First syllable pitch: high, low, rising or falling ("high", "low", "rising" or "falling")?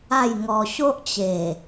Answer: falling